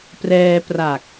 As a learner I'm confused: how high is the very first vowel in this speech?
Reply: mid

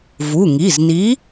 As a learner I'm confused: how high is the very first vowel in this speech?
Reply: high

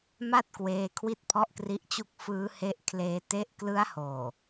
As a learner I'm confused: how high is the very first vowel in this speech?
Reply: low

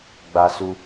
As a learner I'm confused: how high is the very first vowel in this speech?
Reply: low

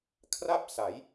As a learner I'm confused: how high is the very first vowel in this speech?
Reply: low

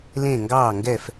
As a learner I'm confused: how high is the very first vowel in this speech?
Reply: mid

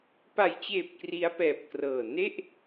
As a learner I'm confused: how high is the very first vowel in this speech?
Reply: low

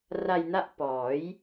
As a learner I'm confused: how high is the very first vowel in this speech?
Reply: low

